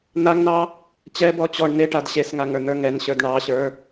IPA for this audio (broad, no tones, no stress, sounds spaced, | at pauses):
n̪ a ŋ n ɑ | t͡ɕ ɛ b ɔ t͡ɕ ɔ ɳ n e ʈ a d ɕ e s ŋ a ŋ ə˞ n̪ ə˞ ŋ ɛ n ɕ ə˞ d ɳ ɑ ɕ ə˞